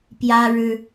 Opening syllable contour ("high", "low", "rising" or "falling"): high